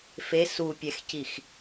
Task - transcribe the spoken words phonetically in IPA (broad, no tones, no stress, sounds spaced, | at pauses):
f e s u pʲ ɛ x c i x